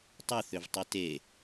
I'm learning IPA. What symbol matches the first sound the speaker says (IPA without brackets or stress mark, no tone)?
tˤ